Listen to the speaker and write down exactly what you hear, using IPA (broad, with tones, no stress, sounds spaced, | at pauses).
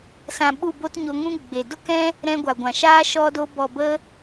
s ã˨ ɓ u˦˨ b o˦ t ɲ o˧ ŋ ũ˦ ɡ͡b e˨ d o˦ k ɛ̃˦ | ɾ ɛ̃˧ ɡʷ a˨ ɡʷ ã˨ ʃ aː˦ ʃ ɔ˧ d o˧ b ɔ˨ b ə˧